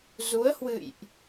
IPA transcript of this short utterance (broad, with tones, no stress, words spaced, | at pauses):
zu˨˦ə̯hwɨ̰˧˨jʔ